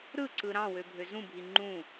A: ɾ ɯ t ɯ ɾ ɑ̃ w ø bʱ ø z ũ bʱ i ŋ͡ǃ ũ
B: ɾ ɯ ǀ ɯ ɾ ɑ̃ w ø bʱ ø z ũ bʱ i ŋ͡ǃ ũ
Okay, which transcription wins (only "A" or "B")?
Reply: B